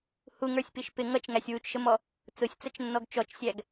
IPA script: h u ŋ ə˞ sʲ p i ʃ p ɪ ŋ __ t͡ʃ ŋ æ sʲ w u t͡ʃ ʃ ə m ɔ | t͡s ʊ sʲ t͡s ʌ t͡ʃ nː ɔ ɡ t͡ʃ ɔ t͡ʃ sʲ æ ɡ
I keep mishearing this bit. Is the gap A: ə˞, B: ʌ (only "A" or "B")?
B